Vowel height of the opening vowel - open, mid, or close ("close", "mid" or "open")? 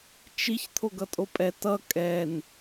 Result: close